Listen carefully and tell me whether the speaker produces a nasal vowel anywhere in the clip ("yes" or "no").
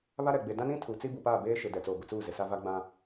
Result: yes